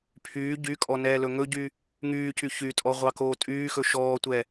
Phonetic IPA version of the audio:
pʰyː ɟykʼɔ nɛːlɵŋɵɟy | ŋyːcy çytʼɔ ʁʷɑkoːtʼyːxɵ ʃɔːtʷɛ

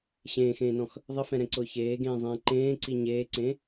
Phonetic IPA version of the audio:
ɕẽːxẽːnɔ̃x | ðˤɪfɛ̃ɾɛ̃ǀʊː çeːɡẽːzˤẽː ǃẽːǀi ɲeːǀẽ

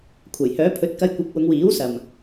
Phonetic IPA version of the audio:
kʷʰɐ˨˩jhœː˨˥pʰɵ˨˥t̚kɐ˧j kʷɪ˨˥k̚ wʊ˨˧ŋwiː˨˥w sɐ˨m

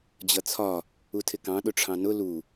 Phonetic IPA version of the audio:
d͡ʑʌt͡sʰɒ | utʰɪkɑ̃ ɗʊʈ͡ʂʰɑ̃nʊ lu

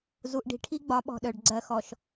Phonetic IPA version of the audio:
zu˨ʔɖi̤˨ʈʰi˦ ɡ͡bɒ˨˦ɓɔ̤˨ɗœ˨ɖ ɡ͡ǀɜ˨xɔ˨ʃ

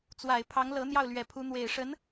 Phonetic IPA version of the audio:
t͡swa˨˩ɪ̯pʰɑ˧˥ŋlɤ˧˥ n̪jɑ˥˩ʊ̯lɥɛ˨˩ pʰu˧˥ n̪we˨˩ɪ̯ʂə˧˥n

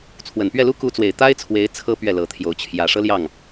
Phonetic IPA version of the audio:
t͡sʰwə˨˩npɥɛ˥˩lu˥ ku˧˥t͡swe˨˩ɪ̯ t̪a˥ɪ̯t͡sʰwe˧˥ɪ̯ t͡sʰɤ˥ pɥɛ˥˩lɤ˧˥t̪ʰjo˧˥ʊ̯ t͡ɕʰjä˨˩ʂɤ˥ljɑ˥˩ŋ

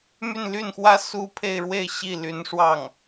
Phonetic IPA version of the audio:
my˥˧nly˥˩nxwä˥ su˥ pʰe˥˧ɪ̯ɻwe˥˧ɪ̯ ɕi˥˩ly˧˥n ʂwɑ˥˩ŋ

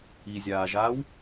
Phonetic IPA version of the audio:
izʲaːʒaːw

